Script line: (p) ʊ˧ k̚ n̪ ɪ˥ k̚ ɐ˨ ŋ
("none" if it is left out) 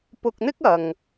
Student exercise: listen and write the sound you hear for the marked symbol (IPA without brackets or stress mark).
p